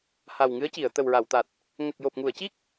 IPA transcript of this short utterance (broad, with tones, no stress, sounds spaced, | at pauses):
h a˨˩ w ŋ ɨ˧˥ ə̯ c i˨˩˨ ə̯ t̪ ə˨˩ w ɹ a˨˩˨ w t̪ a˨˩ t̚ | ŋ ə˨˩ k̚ j o˨˩ p̚ ŋ u˨˩˨ ə̯ c i˦˥ k̚